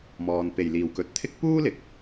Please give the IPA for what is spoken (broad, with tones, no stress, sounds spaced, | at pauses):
m ɔː˨ n p e˨˩ j l iː˨˩ w k ɵ˨ t̚ t̪ʰ ɪ˥ k̚ p uː˥ l ɪ˨ k̚